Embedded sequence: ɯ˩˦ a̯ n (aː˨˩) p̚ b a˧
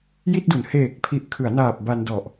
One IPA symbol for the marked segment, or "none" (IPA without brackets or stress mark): aː˨˩